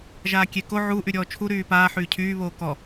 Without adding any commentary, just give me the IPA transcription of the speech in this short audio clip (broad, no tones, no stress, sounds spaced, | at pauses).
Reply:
ʒ aː kʲ e k o ʕ u ʔ y ɾʲ ɔː t͡ʃʰ u ɾ yː p aː ħ yː cʰ yː β oː k ɔ